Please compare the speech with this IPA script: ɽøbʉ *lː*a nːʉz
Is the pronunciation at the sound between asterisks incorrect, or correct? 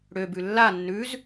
correct